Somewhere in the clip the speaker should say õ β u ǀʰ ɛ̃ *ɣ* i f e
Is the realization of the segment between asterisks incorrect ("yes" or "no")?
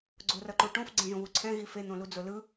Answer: no